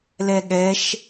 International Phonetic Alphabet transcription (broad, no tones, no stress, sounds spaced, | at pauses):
l ɛ ɠ ɛ ʃ